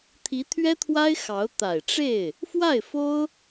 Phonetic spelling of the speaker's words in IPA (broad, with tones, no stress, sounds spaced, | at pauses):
t̪ʰ i˧˥ t̪ʰ ɥ ɛ˥ t̪ʰ w a˥ ɪ̯ x ɑ˧˥ ʊ̯ t̪ a˨˩ ɪ̯ ʈ͡ʂ e˥˩ ɪ̯ | f w a˥˩ ɪ̯ f o˥ ʊ̯